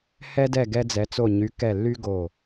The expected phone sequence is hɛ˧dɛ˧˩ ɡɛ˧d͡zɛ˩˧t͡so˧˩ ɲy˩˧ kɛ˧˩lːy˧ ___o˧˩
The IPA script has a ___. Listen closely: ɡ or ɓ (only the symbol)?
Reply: ɡ